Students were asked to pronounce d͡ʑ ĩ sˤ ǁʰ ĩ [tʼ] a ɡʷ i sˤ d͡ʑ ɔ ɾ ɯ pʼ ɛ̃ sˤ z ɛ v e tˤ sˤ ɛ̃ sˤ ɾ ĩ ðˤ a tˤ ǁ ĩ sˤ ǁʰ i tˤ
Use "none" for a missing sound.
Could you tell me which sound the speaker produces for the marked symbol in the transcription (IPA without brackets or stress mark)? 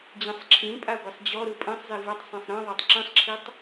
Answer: pʼ